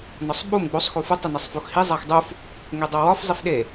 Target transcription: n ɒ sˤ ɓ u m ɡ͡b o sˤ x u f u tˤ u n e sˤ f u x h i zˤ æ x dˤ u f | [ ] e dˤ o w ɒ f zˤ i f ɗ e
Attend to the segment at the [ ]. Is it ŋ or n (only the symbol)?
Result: ŋ